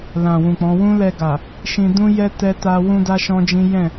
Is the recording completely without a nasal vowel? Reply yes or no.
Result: no